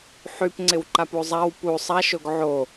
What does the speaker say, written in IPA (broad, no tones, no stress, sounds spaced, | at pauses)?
ħ y p ŋ͡ǀ ɪ w ǃ a p u zˤ a w p u sˤ a ʃ o ɡ ʕ o